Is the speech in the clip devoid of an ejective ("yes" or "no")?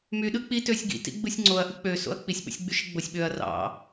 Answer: yes